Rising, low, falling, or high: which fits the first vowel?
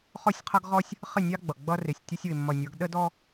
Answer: falling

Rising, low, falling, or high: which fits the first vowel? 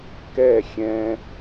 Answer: falling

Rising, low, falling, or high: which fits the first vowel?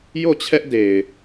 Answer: falling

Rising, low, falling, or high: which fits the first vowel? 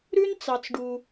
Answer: high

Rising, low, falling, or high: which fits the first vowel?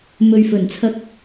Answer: low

